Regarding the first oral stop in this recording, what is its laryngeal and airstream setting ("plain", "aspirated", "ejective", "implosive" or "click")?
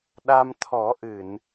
implosive